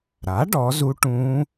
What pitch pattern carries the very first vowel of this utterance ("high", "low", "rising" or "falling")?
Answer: rising